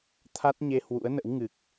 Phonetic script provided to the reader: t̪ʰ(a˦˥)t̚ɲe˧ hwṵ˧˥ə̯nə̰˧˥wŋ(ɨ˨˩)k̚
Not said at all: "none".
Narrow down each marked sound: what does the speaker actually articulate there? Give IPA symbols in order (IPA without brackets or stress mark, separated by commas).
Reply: a˦˥, ɨ˨˩